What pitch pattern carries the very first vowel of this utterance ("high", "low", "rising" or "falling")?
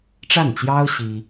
falling